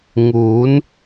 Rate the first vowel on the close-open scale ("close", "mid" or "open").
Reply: close